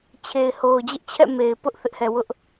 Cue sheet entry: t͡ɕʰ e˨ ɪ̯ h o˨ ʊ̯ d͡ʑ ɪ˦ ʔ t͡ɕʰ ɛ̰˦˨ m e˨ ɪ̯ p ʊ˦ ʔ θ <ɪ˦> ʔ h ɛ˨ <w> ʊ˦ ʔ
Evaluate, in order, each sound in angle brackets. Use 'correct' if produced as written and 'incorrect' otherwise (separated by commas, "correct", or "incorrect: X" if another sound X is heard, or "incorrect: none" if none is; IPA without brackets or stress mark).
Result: correct, correct